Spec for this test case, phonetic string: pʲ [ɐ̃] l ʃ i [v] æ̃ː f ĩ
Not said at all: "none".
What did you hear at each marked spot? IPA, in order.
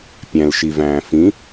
æ̃, v

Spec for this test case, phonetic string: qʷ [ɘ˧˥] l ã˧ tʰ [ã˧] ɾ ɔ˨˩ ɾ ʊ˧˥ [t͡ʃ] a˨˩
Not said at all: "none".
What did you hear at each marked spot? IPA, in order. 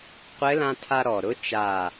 ɘ˧˥, a˧, t͡ʃ

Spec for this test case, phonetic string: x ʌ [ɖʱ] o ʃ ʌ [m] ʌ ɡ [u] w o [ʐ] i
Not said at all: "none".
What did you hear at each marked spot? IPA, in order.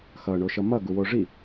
ɳ, m, u, ʐ

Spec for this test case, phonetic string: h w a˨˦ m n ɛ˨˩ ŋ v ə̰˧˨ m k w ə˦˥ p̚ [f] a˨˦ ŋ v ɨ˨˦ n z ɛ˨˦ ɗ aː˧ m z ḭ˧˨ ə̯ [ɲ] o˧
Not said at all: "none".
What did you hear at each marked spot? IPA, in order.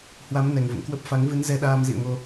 f, ŋ

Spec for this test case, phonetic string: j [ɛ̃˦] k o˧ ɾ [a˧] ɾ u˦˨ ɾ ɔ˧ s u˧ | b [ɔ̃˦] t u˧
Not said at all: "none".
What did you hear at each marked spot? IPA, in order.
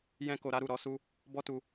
ɛ̃˦, a˦, ɔ˦

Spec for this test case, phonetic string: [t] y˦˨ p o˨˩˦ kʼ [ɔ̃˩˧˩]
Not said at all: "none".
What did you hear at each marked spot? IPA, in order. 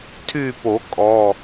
tʰ, ɔ˩˧˩

